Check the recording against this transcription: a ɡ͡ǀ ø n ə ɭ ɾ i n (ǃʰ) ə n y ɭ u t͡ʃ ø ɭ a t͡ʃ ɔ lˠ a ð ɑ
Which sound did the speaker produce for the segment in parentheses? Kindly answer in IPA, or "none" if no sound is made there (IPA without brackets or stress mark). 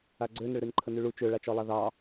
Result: ǃʰ